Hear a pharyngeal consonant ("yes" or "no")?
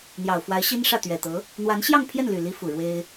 no